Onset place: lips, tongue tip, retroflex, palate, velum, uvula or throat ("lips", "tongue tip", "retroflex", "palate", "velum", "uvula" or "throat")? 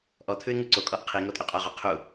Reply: throat